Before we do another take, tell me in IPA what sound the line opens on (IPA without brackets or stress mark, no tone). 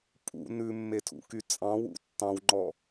pʼ